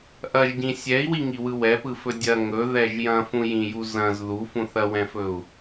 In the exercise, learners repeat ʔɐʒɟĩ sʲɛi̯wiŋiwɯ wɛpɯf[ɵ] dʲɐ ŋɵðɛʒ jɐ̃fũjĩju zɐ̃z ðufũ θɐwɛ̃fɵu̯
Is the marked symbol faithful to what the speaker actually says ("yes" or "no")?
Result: yes